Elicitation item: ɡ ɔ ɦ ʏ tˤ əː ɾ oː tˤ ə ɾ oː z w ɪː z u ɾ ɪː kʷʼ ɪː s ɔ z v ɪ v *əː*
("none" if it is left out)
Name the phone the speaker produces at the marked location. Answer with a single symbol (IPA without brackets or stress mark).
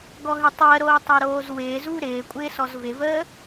əː